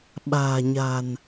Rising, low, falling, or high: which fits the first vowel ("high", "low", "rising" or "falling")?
low